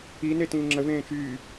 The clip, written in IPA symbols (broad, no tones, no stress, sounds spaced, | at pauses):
i n e t ĩː ŋ͡ǁ ə v ẽː t͡ʃ yː